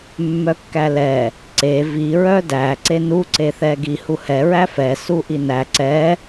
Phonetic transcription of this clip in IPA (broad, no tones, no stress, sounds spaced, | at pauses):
mː œ kː æ l ɛ | ǀ e v i ɹ œ d æ ǀ e n u ǀ e θ ɛ ɡ i h u h ɛ ɹ æ f ɛ s u ʔ i n æ ǀ ɛ